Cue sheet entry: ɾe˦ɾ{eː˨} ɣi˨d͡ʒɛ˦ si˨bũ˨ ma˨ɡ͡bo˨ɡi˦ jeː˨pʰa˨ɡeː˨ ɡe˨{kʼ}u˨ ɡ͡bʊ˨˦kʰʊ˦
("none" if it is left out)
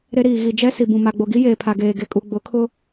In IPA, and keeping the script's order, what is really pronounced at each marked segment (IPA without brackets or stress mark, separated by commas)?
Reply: iː˨, kʼ